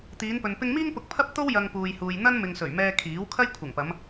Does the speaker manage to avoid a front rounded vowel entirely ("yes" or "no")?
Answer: yes